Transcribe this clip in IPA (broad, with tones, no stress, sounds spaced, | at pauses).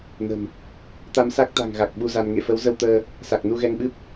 n ə̤˨˩ m | t̪ a˧ m s a˦˥ k̚ t̪ a̤˨˩ ŋ ɣ a˨˩ k̚ ɓ u˧ z a˧ n ŋ ḛ˧˨ f ə˨˦ w z ə˧ w t̪ əː˧ | s a˨˩ k̚ n u˧ ɣ ɛ˧ ŋ ɓ ɨ˦˥ p̚